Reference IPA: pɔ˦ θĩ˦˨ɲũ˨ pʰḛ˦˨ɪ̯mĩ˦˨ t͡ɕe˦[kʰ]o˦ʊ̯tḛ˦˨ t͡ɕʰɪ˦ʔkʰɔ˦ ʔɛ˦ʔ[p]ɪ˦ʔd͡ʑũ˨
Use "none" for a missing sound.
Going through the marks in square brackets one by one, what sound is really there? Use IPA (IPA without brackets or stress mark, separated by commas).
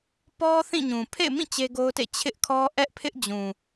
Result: ɡ, pʰ